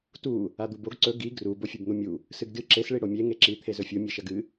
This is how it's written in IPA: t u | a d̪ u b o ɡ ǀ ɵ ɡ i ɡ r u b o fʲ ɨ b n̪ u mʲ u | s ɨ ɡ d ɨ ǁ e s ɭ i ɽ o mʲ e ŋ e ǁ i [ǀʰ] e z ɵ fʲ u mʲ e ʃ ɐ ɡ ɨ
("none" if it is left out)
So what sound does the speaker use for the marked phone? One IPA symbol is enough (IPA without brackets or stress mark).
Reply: t̪ʰ